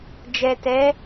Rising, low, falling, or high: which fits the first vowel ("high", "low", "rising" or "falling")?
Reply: low